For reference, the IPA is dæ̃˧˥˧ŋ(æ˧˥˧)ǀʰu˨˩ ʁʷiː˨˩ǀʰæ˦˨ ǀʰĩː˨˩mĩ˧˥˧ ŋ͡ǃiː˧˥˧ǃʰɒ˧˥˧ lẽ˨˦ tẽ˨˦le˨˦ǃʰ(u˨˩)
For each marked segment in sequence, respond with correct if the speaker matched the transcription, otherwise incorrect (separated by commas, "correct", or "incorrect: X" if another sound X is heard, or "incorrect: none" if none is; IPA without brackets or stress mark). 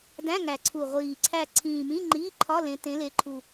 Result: incorrect: æ˨˩, correct